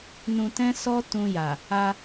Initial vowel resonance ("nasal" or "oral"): nasal